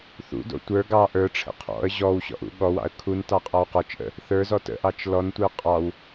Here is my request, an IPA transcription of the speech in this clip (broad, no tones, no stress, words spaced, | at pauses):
θṵdo̰ tʷə˞ ɡɑ ʔə˞ʈ͡ʂʰə̰ qʰɔ̰ə̯ ʑɔwɕɔ̰ʔṵ ɠɔwɑ̰ə̯ kʰuntɑqʼɑw qɔt͡ʃʔə̰ | θə˞zɔ tə̰ʔɑt͡ʃ lɔntʷə˞ qʼɑw